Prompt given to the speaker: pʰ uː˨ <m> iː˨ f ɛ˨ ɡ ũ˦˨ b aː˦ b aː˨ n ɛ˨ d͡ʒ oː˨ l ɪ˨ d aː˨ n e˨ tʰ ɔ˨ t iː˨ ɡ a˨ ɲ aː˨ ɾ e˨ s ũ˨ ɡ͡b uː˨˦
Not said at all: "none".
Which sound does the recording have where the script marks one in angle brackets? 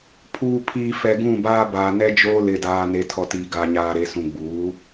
pʰ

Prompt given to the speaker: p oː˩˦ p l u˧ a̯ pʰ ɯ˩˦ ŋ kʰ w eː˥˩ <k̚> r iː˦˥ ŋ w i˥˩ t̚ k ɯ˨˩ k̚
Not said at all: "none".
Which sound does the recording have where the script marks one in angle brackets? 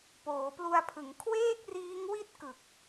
k̚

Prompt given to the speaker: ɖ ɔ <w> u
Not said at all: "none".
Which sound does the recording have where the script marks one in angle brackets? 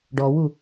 w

